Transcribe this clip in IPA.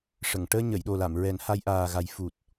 ʂə˨˩˨ŋ ʈəː˧ɲə˨˩˨jɗo˨˩la˨˩˨m ɹɛ˨˩˦nha˧jʔaː˨˩ɣa˨˩˦j fu˨˩t̚

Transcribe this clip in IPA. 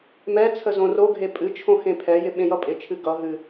mɛ t͡sʰəzõroɡʱe pʼɨt͡ʃʰõ xẽpʰɛjɪ ɓẽjʌpʼɪt͡ʃʰɨ ɡʌ ɦɨ

